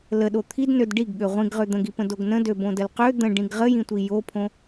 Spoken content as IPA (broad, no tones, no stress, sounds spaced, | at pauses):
l ə ɗ o t̪ʰ i d n ø d ɖ i ɡ ɠ ø ʁʷ ĩ ɡ ʁ ø d̪ ə̃ ɡ i p ə̃ d o ɡ n ə̃ d ø b õ d ə l q ø d̪ ə̃ ɖ ĩ ɡ ʁ ə j ĩ tʷ i j o pʰ õ